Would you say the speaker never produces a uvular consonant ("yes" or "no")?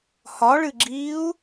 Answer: yes